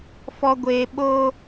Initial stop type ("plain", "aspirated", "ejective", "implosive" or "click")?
plain